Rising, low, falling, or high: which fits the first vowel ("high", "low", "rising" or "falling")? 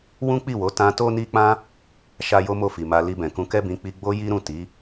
high